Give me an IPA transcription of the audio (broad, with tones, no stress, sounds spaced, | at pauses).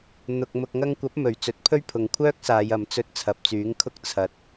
n̪ ʊ˨ k̚ m ʊ˨ k̚ ŋ ɐ˧ ŋ kʷ ɐ˨˥ p̚ m ɵ˨˩ ɥ t͡s ɵ˨˥ t̚ pʰ ɵ˥ ɥ pʰ ʊ˨ ŋ kʷʰ œː˥ k̚ s aː˨˧ j ɐ˨˧ m t͡s ɵ˧ t̚ t͡sʰ ɐ˨ p̚ t͡s yː˨˥ ŋ kʰ ʊ˥ k̚ t͡sʰ ɐ˧ t̚